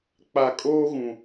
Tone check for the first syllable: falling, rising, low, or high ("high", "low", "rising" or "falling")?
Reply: low